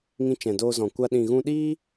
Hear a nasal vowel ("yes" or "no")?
yes